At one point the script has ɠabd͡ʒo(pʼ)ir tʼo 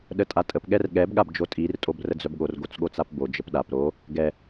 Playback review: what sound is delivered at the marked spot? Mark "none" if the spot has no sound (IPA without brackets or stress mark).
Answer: tʼ